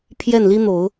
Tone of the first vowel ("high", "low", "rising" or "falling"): falling